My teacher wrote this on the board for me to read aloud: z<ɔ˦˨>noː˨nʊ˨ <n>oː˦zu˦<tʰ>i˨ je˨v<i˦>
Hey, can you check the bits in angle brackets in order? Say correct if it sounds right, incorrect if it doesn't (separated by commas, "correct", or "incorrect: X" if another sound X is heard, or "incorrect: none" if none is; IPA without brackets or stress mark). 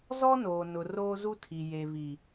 incorrect: ɔ˦, incorrect: r, correct, incorrect: i˨